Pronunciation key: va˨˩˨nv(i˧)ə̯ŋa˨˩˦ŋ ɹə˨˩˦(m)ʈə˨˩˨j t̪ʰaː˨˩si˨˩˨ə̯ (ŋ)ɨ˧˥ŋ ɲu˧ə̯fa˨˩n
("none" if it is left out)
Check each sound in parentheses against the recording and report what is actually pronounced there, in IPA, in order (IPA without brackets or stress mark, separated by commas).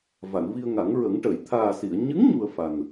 i˧, ŋ, ɲ